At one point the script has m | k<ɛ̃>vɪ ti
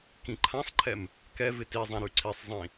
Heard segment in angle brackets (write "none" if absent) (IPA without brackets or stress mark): ɛ